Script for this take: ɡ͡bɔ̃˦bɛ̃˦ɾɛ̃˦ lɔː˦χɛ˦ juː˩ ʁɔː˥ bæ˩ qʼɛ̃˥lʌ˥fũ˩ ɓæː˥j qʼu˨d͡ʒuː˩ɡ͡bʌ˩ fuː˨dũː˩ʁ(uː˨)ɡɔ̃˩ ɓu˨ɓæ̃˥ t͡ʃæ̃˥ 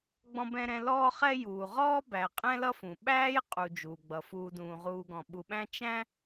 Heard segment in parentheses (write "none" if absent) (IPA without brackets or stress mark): uː˨